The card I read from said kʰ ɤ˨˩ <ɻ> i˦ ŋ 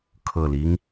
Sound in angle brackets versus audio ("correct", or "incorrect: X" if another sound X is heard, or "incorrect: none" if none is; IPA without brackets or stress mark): incorrect: l